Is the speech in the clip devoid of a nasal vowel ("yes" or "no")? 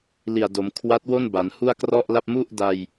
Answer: yes